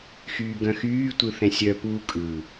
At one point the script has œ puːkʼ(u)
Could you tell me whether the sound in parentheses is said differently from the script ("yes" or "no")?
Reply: yes